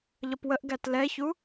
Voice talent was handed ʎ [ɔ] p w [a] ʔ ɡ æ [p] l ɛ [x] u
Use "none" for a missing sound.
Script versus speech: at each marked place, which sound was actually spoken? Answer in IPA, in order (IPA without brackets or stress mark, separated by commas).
ʌ, ə, t, ç